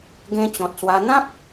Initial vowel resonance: nasal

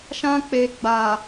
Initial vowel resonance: nasal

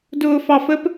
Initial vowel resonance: oral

